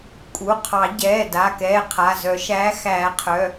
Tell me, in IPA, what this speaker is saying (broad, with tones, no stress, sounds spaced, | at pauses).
kʼ u˩˧˩ qʰ ɑ˨˩˦ ɟ ɛː˩˧˩ d a˩˧˩ k ɛː˩˧˩ qʰ a˩˧˩ z œ˨˩˦ ʃ æː˨˥ x æː˨˩˦ qʰ œ˩˧˩